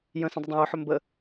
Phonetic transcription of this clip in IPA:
j ə̃ s ə̃ dˤ ə dˤ ɛ̃ j ɵ ħ ɵ m b ə

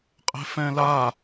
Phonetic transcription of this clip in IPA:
qʼ e̤ f ɛ̃ l a

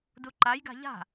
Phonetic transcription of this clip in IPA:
d u ǃ a j ɡ a̤ ʎ a̤

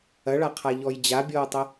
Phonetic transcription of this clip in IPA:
ɐ ɭ a qʰ a ʎ ɔ j d͡ʑ a bʲ ɔː tˤ ɐ

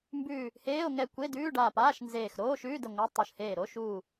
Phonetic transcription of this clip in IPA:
m b ʉː˧˩ | h eː˧˥˧ o̯ ŋ ɛ˧˩ kʷ e˧˥˧ d ʉː˧˥˧ ɖ aː˧˩ p aː˧˥˧ ʃ n z eː˧˩ x ɾ oː˧˥˧ ʃ ʉː˧˥˧ d ə˧˩ ŋʷ a˧˥˧ tˤ o˧˩ ʃ h eː˧˩ ɾ o˧˥˧ ʃ uː˧˩

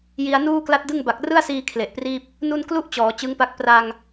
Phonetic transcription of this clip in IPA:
j i˧ a̯ n uː˥˩ k l a˥˩ t̚ d ɯ˥˩ ŋ b a˨˩ k̚ r ɯ˥˩ a̯ s iː˧ kʰ l e˨˩ ʔ p r iː˥˩ p̚ | n u˥˩ n k l u˥˩ ʔ t͡ɕ ɔː˩˦ t͡ɕ ɯ˦˥ ŋ p a˦˥ k̚ p r a˧ ŋ

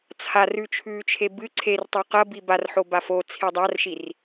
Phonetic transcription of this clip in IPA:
t͡sʰ a r ʉ t͡ʃʰ ʉː t͡ʃʰ e b ɨ ǀʰ e r tˤ u q ɐ b i b a r ħ o b a f o t͡sʰ i dˤ a r ʃ i r

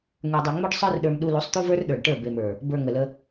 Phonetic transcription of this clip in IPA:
ŋ ə˞˨ dˤ u˨ ŋ͡m o˦ ɖ sˤ ə˞˦ r ɗ ə˞˧ m ɗ u˧ l u˨˦ sˤ t̪ u˦ v ə˞˦ r ɗ ə˞˨ ɖ ʈ ə˞˦˨ b e˨ m ə˞˨ | b ə˞˨ ŋ ə˨ l ə˧

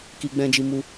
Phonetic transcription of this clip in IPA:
k i˧ ɡ͡b ɛ̃˧ d͡ʒ i˧ m u˧

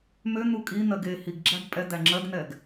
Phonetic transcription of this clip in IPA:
m ø n̪ u kʼ i n̪ ɜ ɡ e h i ɡ ɡ͡ǁ æ ɡ pʼ ɛ d̪ æ ŋ͡ǁ ɜ ɡ n̪ ɛ ɡ

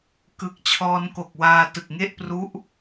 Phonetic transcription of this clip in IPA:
k ɯ˨˩ k̚ t͡ɕʰ ɔː˧ n k o˨˩ k̚ w aː˧ t ɯ˨˩ k̚ ŋ e˥˩ ʔ p r u˦˥ ʔ

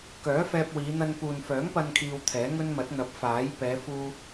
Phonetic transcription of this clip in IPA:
k œː˨˥ f ɛː˧ p̚ w iː˨˧ n̪ ɐ˧ n p uː˨ n f œː˨˥ ŋ p ɐ˧ n kʰ iː˧ w t̪ʰ ɛː˨˥ ŋ ɵ˥ n m ɐ˨˥ t̚ n̪ ɐ˨˥ p̚ f aː˨˥ j p ɛː˨˧ f uː˧

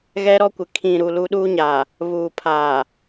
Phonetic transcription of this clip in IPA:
ɣ ɛ˦ ɾ ɔ˦ kʷ ɪ˨ kʰ ĩ˨ ɾ u˨ l u˦ ɗ uː˦ ɲ aː˨ | β uː˨ pʰ aː˨

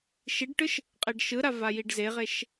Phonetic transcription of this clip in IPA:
ʃ i ɖ ʈ ɯ ʃ | qʼ e ɖ ʃ ɯ ɾ a v a j i ɖ z e ʁ e ʃ

